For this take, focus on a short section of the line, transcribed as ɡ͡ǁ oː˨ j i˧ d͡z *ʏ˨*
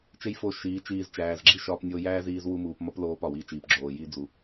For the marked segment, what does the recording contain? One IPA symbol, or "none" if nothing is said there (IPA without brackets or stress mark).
u˨